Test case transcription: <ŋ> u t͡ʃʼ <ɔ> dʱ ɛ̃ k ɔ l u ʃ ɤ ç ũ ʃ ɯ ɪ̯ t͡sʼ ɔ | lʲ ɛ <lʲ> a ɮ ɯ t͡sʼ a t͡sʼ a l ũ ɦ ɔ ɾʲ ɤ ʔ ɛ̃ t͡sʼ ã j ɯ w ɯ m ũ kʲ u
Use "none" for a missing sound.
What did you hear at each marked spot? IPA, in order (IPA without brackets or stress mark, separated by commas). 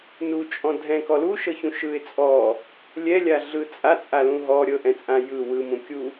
n, ɔ̃, lʲ